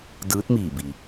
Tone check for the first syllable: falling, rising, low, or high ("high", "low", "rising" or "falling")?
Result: rising